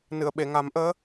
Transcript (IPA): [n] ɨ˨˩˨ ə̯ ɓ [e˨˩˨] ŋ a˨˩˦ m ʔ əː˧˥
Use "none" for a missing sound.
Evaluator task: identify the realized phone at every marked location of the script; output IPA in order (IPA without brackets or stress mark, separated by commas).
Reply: n, e˨˩˨